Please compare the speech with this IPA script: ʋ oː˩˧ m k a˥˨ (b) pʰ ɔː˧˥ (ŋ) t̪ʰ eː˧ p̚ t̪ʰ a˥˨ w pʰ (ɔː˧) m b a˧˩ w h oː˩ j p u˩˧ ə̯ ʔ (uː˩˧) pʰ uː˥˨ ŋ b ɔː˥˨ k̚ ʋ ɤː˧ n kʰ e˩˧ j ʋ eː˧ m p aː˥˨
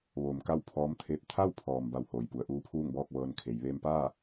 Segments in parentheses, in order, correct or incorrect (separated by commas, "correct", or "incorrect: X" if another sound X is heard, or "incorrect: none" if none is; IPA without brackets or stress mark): incorrect: w, incorrect: m, incorrect: ɔː˩, incorrect: uː˧˥